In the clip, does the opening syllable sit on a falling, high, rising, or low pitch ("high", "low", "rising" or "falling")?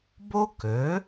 high